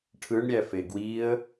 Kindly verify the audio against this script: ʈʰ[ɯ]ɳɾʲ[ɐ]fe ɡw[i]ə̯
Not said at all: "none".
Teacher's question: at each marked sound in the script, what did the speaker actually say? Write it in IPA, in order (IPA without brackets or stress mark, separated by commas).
ɯ, æ, i